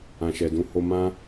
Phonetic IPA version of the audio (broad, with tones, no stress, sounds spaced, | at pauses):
ã˨ ʃ ɛ˨ d ũ˧ h o˧ m ã˦